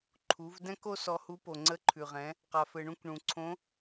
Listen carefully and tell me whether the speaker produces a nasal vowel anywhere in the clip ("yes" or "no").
yes